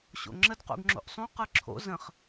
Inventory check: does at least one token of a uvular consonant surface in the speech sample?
yes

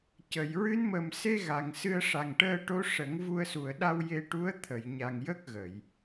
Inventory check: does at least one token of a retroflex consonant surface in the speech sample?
yes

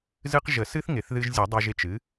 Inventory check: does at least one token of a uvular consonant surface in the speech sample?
yes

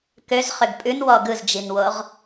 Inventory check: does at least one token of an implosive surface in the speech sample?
no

